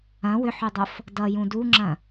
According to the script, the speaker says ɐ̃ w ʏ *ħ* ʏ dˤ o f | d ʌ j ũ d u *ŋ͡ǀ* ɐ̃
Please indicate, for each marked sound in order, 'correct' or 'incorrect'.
correct, incorrect: ŋ͡ǁ

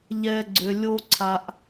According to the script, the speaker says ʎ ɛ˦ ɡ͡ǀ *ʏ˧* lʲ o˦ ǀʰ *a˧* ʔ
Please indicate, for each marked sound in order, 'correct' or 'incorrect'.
correct, correct

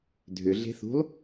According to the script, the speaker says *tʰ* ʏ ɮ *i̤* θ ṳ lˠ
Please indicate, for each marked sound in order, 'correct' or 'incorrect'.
incorrect: dʱ, incorrect: e̤

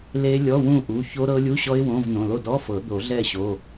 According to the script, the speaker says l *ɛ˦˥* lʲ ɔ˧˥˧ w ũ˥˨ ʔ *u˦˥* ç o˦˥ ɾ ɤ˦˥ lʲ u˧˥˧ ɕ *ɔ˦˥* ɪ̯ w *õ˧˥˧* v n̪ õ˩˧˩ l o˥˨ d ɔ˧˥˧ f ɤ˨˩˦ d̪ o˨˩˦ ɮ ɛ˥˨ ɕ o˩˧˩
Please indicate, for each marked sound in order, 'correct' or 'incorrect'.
incorrect: e˦˥, incorrect: u˩˧˩, correct, correct

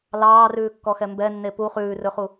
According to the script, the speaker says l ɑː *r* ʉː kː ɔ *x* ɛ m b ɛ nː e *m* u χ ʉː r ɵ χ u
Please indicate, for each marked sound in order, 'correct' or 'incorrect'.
correct, correct, incorrect: p

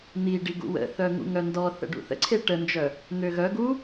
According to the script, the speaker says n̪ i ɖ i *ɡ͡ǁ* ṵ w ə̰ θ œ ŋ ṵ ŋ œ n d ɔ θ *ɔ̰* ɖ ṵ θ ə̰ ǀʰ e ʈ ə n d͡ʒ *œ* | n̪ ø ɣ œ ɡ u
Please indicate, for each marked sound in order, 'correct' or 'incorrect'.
incorrect: ɡ, incorrect: ə̰, correct

